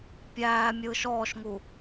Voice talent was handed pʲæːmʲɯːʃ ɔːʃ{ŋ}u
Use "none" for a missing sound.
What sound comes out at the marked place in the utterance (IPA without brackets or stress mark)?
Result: ŋ